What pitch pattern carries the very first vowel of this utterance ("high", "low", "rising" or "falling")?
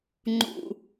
low